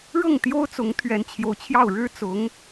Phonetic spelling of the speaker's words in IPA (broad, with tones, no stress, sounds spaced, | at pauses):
ɻ ɤ˥˩ ŋ t̪ j o˥ ʊ̯ t͡s ʊ˧˥ ŋ t̪ʰ ɥ ɛ˧˥ n t͡ɕʰ j o˧˥ ʊ̯ t͡ɕʰ j ɑ˥˩ ʊ̯ ɻ ɻ̩˥ t͡s ʊ˧˥ ŋ